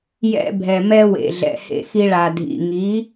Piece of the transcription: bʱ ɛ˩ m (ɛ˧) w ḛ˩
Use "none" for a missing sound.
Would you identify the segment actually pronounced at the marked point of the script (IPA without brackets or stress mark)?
ɛ˧